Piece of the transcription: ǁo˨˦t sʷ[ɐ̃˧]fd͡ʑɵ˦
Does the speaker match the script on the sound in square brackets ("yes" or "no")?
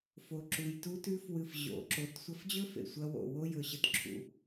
no